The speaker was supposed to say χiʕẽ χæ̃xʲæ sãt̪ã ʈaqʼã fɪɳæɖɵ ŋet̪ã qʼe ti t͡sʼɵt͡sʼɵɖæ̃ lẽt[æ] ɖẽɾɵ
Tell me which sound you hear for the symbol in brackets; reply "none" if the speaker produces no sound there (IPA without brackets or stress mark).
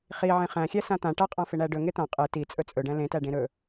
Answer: æ